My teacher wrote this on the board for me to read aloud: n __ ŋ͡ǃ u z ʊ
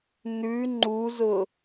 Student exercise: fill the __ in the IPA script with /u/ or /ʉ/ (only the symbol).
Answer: ʉ